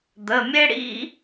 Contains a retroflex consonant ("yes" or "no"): yes